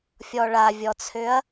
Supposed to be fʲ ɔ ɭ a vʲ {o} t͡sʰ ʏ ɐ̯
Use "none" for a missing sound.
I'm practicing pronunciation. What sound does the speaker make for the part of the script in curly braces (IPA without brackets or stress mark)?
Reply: ɔ